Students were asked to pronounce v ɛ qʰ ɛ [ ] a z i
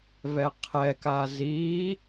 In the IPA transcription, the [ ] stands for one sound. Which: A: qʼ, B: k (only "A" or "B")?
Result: B